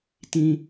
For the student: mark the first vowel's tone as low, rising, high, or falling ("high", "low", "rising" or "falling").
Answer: high